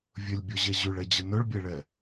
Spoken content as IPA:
vʲ ɵ lʲ bʲ ɔ ʑ ɛ ʑ ʉ ɭ ɛ d͡ʑ ə n ɵ ɭ bʲ ɛ ɭ ɛ

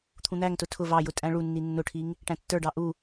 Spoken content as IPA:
t̪ʰ ũ n̪ æ ŋ t ʊ tʰ ʊ v ɑ j ʊ tʼ æ̃ ɭ u nː i nː ʊ ʈʰ i ŋ | ʈ æ̃ tː ə˞ ɖ ɑ ʔ u

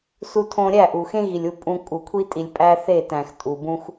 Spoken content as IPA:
s u˧ tʰ õ˧ ɾʲ æ˦˨ ʔ u˨ x ẽ˦ ɣ i˨ lʲ u˦˨ pʼ ũ˧ kʼ u˨ kʷʰ i˧ tʼ i˨ lʲ pʼ æ˦ θ e˦˨ t æ̃˨ x tʼ u˨ b ũ˧ x

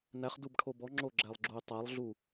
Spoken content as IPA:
n æ χ d u b ʈʰ o b ɔ ŋ͡ǁ o ɡ͡ǁ æ lˠ ɡ͡ǁ u y̯ tˤ æ lˠ ɮ u

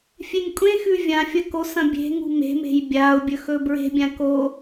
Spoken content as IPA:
fʲ e ŋ kʷʼ ẽ x ʉ vʲ ã fʲ ɐ k o s ɐ̃ bʲ e̤ ŋ ṳ m e̤ m e̤ j bʲ a ʊ̯ bʲ ɵ x ɵ b ɹ e̤ bʲ ã k o

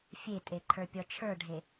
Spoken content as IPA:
fʲ e tʼ e ǃʰ ə˞ pʲ ɔ t͡ʃʰ ə˞ ɖʱ e

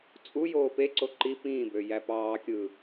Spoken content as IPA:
t͡sʼ u j oː p e ǀ o ǃ i p ĩː b ø j æ p ɑː kʲ ɯ

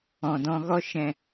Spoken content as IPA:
ɔ̃˨ d ɔ̃˧ ɣ ɔ˦ ʃ ɛ̃˧

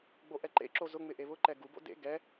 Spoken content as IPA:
ɡ͡b o ʔ ɛ ǃ ḛ ǁ o z ʊ ŋ͡m ɪ ʔ e β ʊ ǃ ɛ ɡ u b o̰ d ḛ ɡ ɛ

